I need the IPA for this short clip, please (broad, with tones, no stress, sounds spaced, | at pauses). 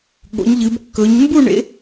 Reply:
ɠ o̰˨˦ ɲ ʎ ɨ˨˦ b kː ɵ˨˦ ɲ m b u˥˧ ɳ ḛ˨˦